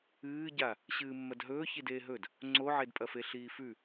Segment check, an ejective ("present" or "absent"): present